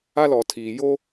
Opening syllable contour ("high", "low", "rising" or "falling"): high